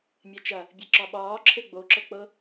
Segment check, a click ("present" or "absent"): present